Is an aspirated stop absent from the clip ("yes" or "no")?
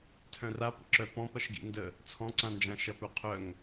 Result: no